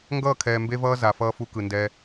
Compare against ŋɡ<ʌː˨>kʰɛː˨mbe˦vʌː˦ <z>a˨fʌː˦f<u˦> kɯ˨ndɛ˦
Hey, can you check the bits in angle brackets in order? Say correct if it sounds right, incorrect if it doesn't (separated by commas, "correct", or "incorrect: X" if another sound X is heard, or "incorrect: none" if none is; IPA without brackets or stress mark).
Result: incorrect: ʌː˦˨, correct, correct